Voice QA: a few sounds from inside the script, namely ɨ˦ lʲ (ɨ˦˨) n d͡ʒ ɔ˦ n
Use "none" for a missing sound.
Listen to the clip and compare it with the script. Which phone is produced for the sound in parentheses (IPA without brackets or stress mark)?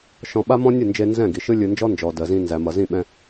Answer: ɨ˧